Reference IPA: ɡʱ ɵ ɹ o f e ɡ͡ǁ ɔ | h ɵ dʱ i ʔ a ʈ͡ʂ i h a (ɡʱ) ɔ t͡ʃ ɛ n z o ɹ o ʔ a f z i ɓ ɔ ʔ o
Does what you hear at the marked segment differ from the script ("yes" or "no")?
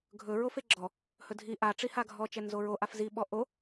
no